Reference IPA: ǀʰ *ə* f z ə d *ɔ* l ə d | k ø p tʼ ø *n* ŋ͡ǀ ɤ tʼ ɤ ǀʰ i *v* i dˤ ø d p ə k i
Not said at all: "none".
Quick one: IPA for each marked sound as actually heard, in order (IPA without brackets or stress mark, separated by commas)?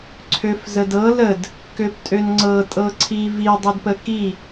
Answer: ø, ɤ, n, v